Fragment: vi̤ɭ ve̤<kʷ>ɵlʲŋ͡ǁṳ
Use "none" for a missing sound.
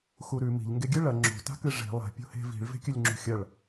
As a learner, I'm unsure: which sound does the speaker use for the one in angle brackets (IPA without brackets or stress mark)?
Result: kʲ